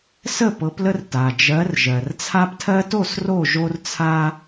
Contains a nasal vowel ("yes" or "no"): no